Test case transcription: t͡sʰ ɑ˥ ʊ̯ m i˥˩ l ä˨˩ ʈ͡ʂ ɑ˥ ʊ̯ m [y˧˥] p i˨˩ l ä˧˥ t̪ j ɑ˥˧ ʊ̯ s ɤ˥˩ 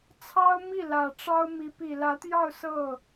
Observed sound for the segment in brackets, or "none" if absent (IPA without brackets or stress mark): i˧˥